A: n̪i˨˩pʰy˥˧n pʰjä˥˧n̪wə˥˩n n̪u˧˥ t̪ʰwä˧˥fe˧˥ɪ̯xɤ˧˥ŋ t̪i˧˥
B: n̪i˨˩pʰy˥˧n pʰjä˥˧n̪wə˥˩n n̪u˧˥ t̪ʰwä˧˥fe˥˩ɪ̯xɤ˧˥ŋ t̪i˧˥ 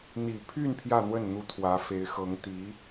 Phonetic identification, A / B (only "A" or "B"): A